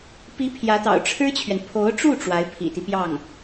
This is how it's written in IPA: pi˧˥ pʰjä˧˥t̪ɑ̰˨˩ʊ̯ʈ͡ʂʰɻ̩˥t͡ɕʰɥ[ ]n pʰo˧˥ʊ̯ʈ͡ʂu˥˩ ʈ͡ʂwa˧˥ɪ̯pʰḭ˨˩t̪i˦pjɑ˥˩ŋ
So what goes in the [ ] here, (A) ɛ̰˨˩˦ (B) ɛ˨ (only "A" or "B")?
B